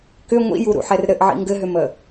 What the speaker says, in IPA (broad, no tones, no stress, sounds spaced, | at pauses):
k ʏ ŋʷ ḭ j u ɾ ṵ ħ ɛ r ɾ ɘ ʔ ʕ ḭ ŋ ɡ ɘ ɦ ʏ m ə